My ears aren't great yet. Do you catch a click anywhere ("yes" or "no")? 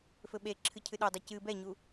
yes